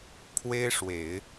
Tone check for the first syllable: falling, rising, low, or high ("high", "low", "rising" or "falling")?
high